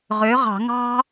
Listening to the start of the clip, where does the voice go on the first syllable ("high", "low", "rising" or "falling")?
rising